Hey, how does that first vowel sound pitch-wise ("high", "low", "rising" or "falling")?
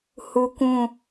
high